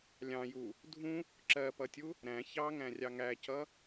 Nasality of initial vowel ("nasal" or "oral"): nasal